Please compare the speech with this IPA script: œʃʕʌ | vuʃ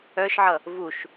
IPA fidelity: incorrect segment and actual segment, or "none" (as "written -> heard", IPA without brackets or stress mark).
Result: none